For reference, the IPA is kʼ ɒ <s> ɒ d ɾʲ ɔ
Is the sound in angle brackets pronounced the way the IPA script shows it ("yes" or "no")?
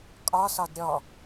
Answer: yes